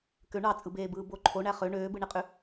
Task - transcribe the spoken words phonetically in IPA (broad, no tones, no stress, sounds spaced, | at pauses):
k ø ɳ ɑ t͡sʼ ɯ b eː b ɯː b o ǃʰ o ɳ æ χ ø ɳ øː b ɯ ɳ i qʼ y